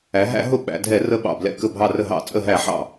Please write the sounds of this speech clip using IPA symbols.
æ˩˧ ɦ æ̰˧˩˧ ɦ ʊ˧˩ ɓ æ̰˩˧ dʱ ɛ˧˩˧ r ə˧˩ ɓ ɑ̰˧˩ b l ɛ̰˧˩ k ə˧˩ bʱ ɑ˧˩ r ə˧˩ ɦ ɑ̰˧˩˧ t͡sʼ ə˧˩ ɦ æ˧˩˧ ħ ɑ̰˧˩

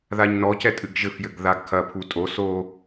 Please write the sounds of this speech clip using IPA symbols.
ð a ɲ n ɔ c ɛ tʼ ɨ ɡ ʒ ɘ f j ɘ ɡ ð a ɡ kʰ ɐ pʰ u tʼ o s o

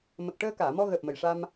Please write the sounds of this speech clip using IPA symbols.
m ə˨˩ k̚ ʈ əː˧ k aː˨˩˨ m ɔ˧ ɣ əː˨˩ p̚ m ə˨˩ j ʂ a˧ m

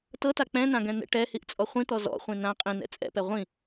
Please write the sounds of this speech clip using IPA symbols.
t ɤ t a k͡p ɛ̃ n ã ɡ ɛ̃ n̪ ɛ̰ ʈ ɛ h i ʔ t͡sʼ ɔ χʷ ĩ t̪ ɔ z ɔ̰ χʷ ĩ n ã qʼ ĩ n ɛ̰ t͡sʼ ɛ̰ p ɛ ʁʷ ĩ

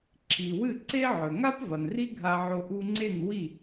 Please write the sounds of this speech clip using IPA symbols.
ǁʰ i˩ w ɨ˥˩ ǀ e˥ ʕ ɵ˩ ŋ a˥ p v ɐ˩ n r i˥ ɡʱ a˧ ʕ o˧ ʔ u˧ ŋ͡ǀ e˥˩ n w i˥˩

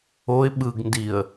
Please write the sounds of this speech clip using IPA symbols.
o ɪ̯ ɓ ɯ ɡ n d i ə̯

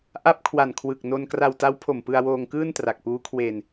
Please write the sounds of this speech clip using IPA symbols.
ʔ a˥˩ p̚ kʰ w a˨˩ n kʰ w ɯ˨˩ k̚ n o˧ n k r a˧ w t a˦˥ w pʰ o˨˩ m p ɯ˧ a̯ w oː˧ ŋ k ɯː˥˩ n t r a˨˩ k̚ p uː˦˥ kʰ w e˧ n

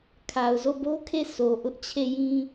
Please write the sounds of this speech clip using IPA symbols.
kʰ a˨ ʊ̯ z o˦˨ b o˦ kʰ e˦˨ sʰ o˨ ʔ ʊ˦ ʔ t͡ɕʰ e˦˨ j ĩ˦

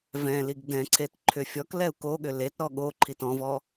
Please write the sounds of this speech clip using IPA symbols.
v ɛ̃ l i ɡ d ɛ̃ ǀʰ e t ǃʰ ʏ fʲ ɔ k l ɛ u̯ k o ɠ ʏ l e t ɾ ɔ ɠ o ǃʰ i t ɔ̃ v ɔ

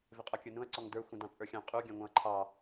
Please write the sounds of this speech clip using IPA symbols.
v ɪ qʼ ɔ kʲ ə˞ n ũ ɐ̯ ǀ ɔ ŋ d ə˞ xʷ ə̃ d ɑ̃ t͡sʼ ə˞ xʲ ɑ̃ qʼ u ɡʲ ɑ̃ ŋʷ ɑ̃ ɐ̯ ǃʰ ɑ

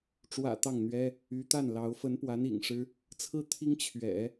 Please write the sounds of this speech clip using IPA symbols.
ʈ͡ʂ w ä̰˨˩ t̪ ɑ˥˩ ŋ n̪ ɥ ɛ˥ | y˧˥ t̪ a˥˩ n l ɑ˧˥ ʊ̯ f ə˧˥ n p w a˧˥ n ḭ˨˩ ŋ ʂ ɻ̩˥ | t͡sʰ ɹ̩˥˩ t̪ʰ i˥ ŋ t͡ɕʰ ɥ ɛ̰˨˩˦

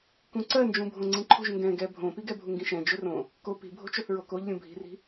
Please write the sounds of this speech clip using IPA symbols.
k ũ ǀ ɜ n d͡ʒ ũ bʱ õ ŋ͡ǀ ĩ ǃʰ o̤ ʒ ŋ ɡ ɛ̃ ɡ ɛ bʱ õ p i ɡ ɛ bʱ u ŋ ɡ ĩ ʃ ɛ̃ d͡ʒ ɵ r õ | k o p i̤ bʱ o̤ t͡ʃ ɵ θ ɹ o k o ʎ lʲ ũ bʱ i̤ r i̤

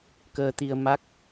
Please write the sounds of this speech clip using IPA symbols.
k əː˧ t̪ i˧ ə̯ m a˦˥ k̚

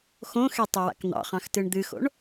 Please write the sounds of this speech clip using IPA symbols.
x õ x e tˤ ɨ w a̰ k n̪ ɑ̰ χ ɑ̃ x t ɨ ɳ d̪ ɨ x o̰ ɳ

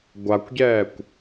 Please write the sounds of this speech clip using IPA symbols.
ɡʷ a kʷ ɟ ɛː kʷ

